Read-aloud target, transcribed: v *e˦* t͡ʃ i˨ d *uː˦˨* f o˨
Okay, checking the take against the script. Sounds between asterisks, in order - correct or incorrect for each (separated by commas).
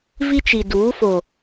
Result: incorrect, incorrect